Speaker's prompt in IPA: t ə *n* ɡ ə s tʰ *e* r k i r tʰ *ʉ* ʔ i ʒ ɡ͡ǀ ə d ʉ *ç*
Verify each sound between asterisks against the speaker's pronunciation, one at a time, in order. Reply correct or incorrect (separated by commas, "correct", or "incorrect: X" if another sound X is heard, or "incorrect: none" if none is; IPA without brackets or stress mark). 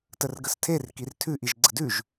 incorrect: r, correct, correct, incorrect: ʒ